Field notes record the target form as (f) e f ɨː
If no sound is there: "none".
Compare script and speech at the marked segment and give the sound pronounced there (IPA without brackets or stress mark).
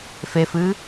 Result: f